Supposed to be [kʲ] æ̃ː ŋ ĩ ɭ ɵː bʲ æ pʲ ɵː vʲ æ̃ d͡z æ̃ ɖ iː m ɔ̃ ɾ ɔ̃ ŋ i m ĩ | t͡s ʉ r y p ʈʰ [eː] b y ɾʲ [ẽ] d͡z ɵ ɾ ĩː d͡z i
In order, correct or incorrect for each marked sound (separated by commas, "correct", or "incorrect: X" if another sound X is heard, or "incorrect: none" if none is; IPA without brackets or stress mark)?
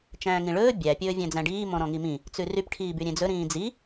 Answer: incorrect: t͡ʃ, incorrect: iː, correct